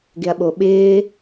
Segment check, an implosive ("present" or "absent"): present